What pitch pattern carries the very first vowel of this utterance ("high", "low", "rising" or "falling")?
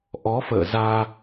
rising